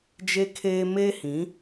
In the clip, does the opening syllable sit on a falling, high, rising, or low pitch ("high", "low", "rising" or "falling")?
high